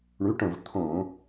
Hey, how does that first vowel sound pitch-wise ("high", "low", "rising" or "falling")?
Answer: rising